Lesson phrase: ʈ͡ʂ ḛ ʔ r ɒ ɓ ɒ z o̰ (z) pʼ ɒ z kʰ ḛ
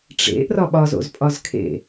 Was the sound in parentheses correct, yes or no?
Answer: yes